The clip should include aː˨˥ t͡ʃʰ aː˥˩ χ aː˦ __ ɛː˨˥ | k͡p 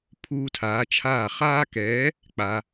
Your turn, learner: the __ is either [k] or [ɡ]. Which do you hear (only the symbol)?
k